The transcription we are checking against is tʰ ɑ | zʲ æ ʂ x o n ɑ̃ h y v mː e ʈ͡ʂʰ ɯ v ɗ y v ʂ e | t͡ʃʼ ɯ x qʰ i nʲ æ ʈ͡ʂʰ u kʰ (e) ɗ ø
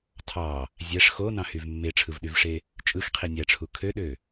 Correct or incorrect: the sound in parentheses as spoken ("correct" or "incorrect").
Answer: incorrect